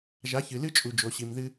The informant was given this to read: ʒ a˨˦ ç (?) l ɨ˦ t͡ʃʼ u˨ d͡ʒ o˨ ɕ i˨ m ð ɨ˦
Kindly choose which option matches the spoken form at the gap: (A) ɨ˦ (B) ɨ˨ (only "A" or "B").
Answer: B